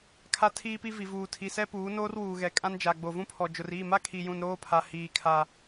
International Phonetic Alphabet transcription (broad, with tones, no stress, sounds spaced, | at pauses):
kʰ a˦ tʰ iː˦ p i˦ v i˨ v uː˨ tʰ i˨ s ɛ˦ p uː˨˦ n oː˦ r w uː˨ ɣ ɛ˨ kʼ ã˦ n d͡ʒ a˨ ɡ͡b o˨ v ũ˦ pʰ ɔ˨ d͡ʒ ʊ˨ r iː˦˨ m a˦ kʰ i˨ j ũ˨ n ɾ oː˦ pʰ a˨ h iː˨ kʰ a˨